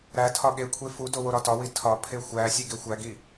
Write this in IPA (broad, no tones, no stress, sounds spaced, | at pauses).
ɾ æ tʰ ɒ ɠ e kʷʰ e f u d o w o ɾ ɒ t ɒ w i tʰ ɒ pʰ e xʷ æ sʲ e ɡ e xʷ æ ɡ i